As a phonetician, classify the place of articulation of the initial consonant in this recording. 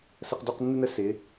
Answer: alveolar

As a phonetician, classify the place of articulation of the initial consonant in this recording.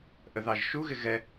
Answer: glottal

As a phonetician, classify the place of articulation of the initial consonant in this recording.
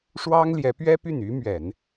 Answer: retroflex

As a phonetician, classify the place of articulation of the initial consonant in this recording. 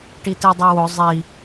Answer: retroflex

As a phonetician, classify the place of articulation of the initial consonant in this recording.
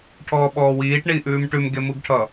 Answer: retroflex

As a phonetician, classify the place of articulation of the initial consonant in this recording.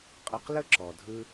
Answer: uvular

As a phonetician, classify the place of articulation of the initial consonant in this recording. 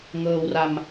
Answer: velar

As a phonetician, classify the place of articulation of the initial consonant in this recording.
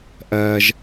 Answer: glottal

